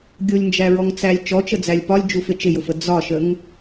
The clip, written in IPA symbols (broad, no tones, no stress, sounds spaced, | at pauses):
ɡʲ ʊ lʲ n d͡ʒ æ ɹ ɔ ŋ t͡s æ lʲ t͡ʃ ɔ t͡ʃ ə d͡z æ lʲ p ɒ lʲ d͡ʒ u f ɪ t͡ʃ ɪ j ʊ f ə d͡z ɒ ʃ ə ŋ